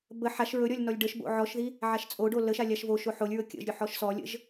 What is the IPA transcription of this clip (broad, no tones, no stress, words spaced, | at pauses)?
bə ħaʃ ɹɵɾʲɔlʲ nɔlʲɖəʃbo̰ ʕɔʃði | ʕaʃt͡sʼoɖo ləʃa lʲaʃvoʃo ħolʲɹɵ kʲə̰ʒɾʲɵ ħɔʃsɔlʲə̰ʒ